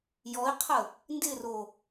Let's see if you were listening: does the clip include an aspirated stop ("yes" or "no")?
yes